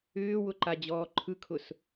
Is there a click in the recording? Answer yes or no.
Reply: yes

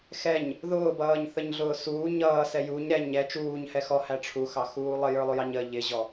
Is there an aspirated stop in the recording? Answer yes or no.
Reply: yes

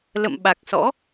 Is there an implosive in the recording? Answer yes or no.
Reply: yes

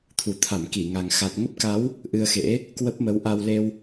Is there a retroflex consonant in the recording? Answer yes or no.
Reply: no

